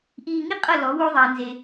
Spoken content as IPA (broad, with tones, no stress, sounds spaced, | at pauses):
ʔ iː˧ ŋ i˥ qʼ ɤ˥˩ l ɔ˩˥ w o˥ ðˤ ɛː˩ n z e˩